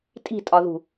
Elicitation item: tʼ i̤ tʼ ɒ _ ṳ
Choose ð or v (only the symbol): ð